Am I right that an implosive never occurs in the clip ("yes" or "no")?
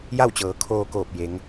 yes